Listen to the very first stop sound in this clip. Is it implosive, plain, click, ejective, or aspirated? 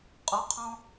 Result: ejective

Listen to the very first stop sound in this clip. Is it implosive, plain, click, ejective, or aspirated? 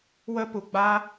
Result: plain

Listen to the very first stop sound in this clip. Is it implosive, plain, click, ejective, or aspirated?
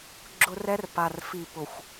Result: click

